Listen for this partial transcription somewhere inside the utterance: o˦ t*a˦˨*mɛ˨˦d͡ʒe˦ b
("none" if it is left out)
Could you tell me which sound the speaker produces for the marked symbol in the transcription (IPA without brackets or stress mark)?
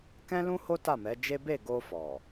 a˦˨